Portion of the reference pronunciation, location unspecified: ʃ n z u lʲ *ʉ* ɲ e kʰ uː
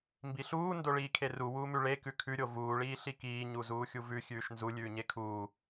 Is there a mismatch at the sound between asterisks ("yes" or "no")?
yes